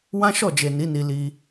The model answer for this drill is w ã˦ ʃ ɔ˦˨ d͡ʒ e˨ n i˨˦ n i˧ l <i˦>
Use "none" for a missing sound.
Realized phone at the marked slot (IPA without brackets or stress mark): i˧